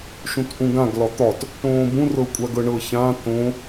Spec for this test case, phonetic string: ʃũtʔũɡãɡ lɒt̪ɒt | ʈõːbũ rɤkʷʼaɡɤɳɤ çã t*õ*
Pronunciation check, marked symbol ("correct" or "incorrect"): correct